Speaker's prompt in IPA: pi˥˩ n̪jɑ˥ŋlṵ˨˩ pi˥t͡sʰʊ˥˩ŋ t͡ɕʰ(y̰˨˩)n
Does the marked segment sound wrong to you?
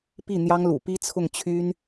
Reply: yes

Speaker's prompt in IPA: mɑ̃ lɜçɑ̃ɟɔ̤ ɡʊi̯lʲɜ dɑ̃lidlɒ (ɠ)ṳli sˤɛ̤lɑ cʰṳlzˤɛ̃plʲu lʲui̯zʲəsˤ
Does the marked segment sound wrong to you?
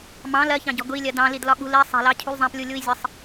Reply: no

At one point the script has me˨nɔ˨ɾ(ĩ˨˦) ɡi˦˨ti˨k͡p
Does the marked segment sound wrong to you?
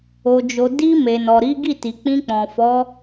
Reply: yes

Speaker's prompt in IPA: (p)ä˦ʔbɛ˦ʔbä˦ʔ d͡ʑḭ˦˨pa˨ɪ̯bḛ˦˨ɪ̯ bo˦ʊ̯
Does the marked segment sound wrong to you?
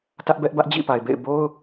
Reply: yes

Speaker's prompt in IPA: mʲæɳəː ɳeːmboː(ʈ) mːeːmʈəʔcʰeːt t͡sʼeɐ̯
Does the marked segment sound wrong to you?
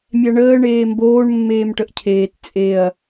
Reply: yes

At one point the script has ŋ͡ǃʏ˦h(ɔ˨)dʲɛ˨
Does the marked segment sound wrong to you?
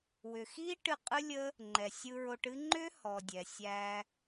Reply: no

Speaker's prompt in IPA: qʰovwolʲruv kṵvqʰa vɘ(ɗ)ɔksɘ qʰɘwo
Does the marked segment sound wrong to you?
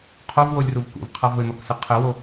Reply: yes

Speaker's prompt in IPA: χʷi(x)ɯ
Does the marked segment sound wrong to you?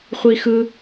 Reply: no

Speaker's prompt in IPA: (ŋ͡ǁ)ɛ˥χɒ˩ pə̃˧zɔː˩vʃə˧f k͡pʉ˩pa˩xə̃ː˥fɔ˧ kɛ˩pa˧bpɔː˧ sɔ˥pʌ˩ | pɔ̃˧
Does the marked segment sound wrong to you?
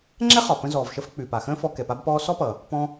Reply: no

